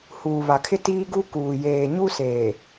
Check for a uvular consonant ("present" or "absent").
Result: absent